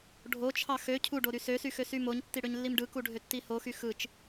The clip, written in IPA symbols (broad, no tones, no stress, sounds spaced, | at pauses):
ɖʱ o t͡ʃʰ ɑ x ø cʰ u ɖ o ɾ y s ø s y x ø s y m o ɲ tː i ɽ ø ɲ lː i m ɖ ɯ k u ɖʱ ø tː i h o x y x ɯ t͡ʃ